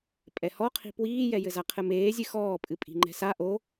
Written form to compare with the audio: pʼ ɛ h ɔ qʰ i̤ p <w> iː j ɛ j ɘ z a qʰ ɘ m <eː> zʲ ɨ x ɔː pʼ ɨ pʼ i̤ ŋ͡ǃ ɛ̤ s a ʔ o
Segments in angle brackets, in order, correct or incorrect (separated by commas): correct, correct